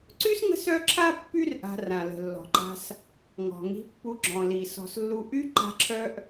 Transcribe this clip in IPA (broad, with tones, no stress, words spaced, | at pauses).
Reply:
ǀy˥sŋə̤˦sœ˦ǁʰa˦ pːy˥rʔa̤˨ rã˩lə̤˩lːɔ̤˩ǃa̤˨s | ŋɔ̤˩ŋi̤˨pːu˨ ɡ͡ǁɔ̃˩li˩ sɔ̤˩slːu˨ ʔy˥ ǃa̤˦ǁʰœ˥ʔ